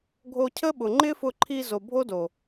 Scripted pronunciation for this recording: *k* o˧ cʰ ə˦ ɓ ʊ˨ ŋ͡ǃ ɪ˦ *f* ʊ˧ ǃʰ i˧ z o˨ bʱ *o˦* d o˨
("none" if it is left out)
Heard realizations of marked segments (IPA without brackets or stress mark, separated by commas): ɡʱ, f, o˦